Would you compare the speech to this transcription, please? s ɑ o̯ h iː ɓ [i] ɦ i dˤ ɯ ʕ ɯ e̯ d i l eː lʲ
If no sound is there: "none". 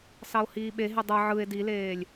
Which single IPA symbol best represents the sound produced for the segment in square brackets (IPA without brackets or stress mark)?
e